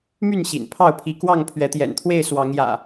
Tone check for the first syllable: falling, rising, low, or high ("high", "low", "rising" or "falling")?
falling